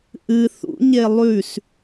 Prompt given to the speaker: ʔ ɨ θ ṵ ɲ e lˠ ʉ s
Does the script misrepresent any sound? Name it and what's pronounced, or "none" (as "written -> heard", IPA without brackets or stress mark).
none